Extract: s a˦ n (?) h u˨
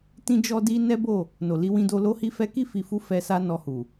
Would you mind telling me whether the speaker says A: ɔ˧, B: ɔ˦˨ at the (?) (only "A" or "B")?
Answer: A